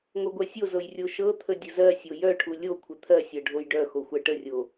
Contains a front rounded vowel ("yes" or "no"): yes